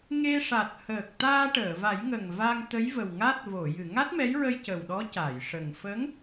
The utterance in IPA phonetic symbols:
ŋe˧ʂa˨˩t̚ həː˨˩k̚ t̪aː˧ʈəː˨˩˨va˨˩˦jŋə˨˩ŋ va˧ŋt̪ə˧˥jvə˨˩w ŋa˦˥t̚ vo˨˩˨jɨ˨˩˨ ŋa˦˥t̚mɛ˧˥jɹə˧j cə˨˩wɗɔ˧˥ca˨˩˨jʂə˨˩ŋ fə˧˥ŋ

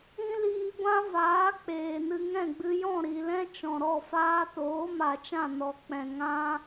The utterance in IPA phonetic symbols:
ĩ˦liː˧ɡʷã˦vaː˨˦ k͡peː˨nɨ˧ ŋɛ̃˦˨ɡ͡bɨ˧jɔ̃˦˨ ɾi˨lɛ̃˦ t͡ʃɔ̃˨ɾɔ˦˨faː˦ toː˨˦ma˨t͡ʃã˦˨ nɔ˧ k͡pɛ̃˨ ŋã˦

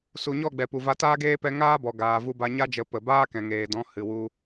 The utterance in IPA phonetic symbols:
su˨ɲɔ˦˨ ɡ͡bɛ˨pu˨va˧ taː˦ɡeː˦pɛ˧ ŋaː˦bɔ˨ ɡaː˨vu˧ba˧ ɲa˦d͡ʒə˨˦ pə˨ baː˦kɛ̃˨ŋeː˨dɔ̃˨˦ hɨ˨wu˧

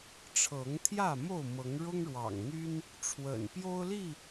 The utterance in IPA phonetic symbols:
ʈ͡ʂʰɤ˨˦ŋt̪ʰjä˥˨mo˥˨ʊ̯ mɤ˨˦ŋɻʊ˦ŋɻwɑ̰˨˩ŋn̪y˦n | ʈ͡ʂʰwə̰˨˩npjo˦ʊ̯li˥˨

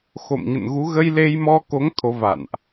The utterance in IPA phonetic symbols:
xo̰˧˨mɲə̰˧˨nɣu˨˦ ɣə˧jle˧jmɔ˧ko˨˦ŋ t̪ʰo˨˦va̰˧˨nʔ

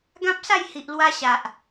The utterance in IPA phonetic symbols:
ɡã˦p̚sa˥˧jhi˨ʔlwa˧ ɕa˨ʔ

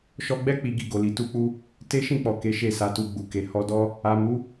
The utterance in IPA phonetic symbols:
ʃɔ˧ɡ͡bɛ˦ k͡pi˧ɡi˧ɡo˨li˨ tu˧k͡pu˧ | te˦ʃĩ˦˨k͡pɔ˨ ke˨˦ʃe˦˨sa˨˦tu˧ ɡ͡bu˨ke˨ hɔ˧dɔ˦ | a˨mu˨˦

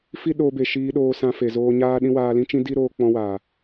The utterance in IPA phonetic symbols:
fi˦ɗoː˧be˨ ʃiː˧ ɗoː˧sã˧ fe˨zoː˧ɲaː˦ɗĩ˦ waː˧lĩ˦t͡ʃĩ˦ di˦ɾoː˧ k͡pɔ̃˧waː˨

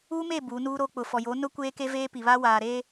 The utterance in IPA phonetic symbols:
u˦me˦˨ bu˨˦nuː˦ɾo˦ k͡pʊ˨fɔ˨ jo˨˦nʊ˦ kʷeː˦ke˦veː˦ pi˨βa˦ waː˨ɾeː˦

